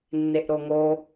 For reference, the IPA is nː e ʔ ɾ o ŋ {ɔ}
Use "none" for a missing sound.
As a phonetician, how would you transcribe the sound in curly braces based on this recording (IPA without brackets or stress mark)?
o